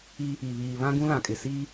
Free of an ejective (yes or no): no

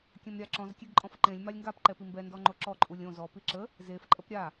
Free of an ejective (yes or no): no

